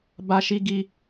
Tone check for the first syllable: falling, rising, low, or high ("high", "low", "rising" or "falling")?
high